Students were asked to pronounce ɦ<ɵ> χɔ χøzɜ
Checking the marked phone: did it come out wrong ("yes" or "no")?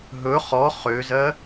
no